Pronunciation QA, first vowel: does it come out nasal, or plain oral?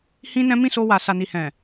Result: nasal